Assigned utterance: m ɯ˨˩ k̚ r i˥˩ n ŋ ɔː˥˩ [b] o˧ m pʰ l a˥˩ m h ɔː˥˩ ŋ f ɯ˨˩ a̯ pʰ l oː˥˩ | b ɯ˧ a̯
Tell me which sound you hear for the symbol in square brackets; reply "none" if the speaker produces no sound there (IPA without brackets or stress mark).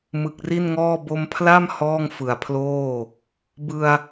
b